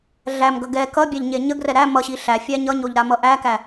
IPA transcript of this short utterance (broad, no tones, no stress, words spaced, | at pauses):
ɮæmɡʌ ɡɛ kʌbʲæʎ ɲeɲəɡrɛ ɾæ mʌɕi ɬæ fʲæɲʌɲoʎ ɾamʌʔækæ